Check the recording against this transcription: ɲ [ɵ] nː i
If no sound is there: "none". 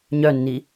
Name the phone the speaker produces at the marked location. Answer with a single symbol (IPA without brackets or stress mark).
œ